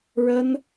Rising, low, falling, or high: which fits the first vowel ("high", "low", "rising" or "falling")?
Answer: high